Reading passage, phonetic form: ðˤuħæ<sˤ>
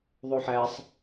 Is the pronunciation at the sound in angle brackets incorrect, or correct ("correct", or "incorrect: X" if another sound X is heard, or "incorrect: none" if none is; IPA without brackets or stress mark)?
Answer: correct